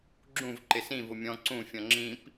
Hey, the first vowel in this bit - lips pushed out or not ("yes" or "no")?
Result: yes